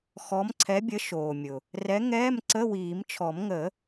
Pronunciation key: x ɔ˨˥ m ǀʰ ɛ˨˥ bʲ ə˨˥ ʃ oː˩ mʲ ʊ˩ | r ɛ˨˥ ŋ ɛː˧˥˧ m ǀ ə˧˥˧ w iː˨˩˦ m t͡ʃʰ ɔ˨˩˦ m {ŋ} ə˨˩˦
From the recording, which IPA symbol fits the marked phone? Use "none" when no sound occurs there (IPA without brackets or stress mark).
ŋ